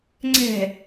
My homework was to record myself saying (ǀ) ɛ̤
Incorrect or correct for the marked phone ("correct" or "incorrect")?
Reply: incorrect